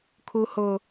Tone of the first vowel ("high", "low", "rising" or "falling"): high